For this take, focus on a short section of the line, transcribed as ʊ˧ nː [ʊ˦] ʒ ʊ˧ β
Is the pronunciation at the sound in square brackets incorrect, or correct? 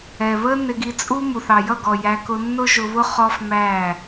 correct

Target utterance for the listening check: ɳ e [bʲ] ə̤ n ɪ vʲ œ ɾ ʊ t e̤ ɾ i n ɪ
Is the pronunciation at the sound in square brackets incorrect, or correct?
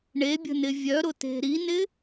correct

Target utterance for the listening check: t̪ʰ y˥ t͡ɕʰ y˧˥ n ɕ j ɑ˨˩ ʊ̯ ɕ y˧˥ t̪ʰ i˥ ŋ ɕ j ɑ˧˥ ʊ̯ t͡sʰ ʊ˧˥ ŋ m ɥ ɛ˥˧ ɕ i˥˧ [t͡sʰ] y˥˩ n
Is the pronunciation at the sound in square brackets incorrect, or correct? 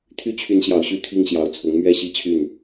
incorrect: t͡ɕʰ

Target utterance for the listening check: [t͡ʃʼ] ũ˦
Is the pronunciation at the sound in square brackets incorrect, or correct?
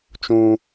incorrect: t͡ʃ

